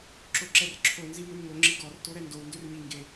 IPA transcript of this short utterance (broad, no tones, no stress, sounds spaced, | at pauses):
ǁ o ǁ ɛ r ǁʰ o n z i m ø m ŋ o ŋ͡ǁ i ɡ ɔ r t o ɾ ɛ n d o w n d ø r ɲ i ŋ ɡ e